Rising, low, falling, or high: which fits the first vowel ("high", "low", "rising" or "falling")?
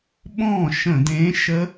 falling